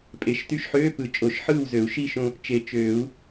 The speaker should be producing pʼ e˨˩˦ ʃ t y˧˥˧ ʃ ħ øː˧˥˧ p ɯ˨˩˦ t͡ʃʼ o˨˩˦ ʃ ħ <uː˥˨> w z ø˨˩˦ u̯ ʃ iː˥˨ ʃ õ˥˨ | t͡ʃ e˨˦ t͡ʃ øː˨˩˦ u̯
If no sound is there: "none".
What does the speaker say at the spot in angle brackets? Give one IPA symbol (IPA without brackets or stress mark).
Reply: ɯː˥˨